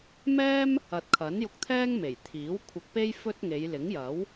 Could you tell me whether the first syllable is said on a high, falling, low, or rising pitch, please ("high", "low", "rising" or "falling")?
high